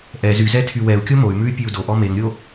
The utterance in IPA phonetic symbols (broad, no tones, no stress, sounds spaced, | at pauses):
ʔ ɛ z y z ɛ tʰ y w ɛ u̯ kʲ o m o y̯ m ʉ y̯ pʲ ʉ u̯ d o ʔ ɔ m e ŋ ɾʲ o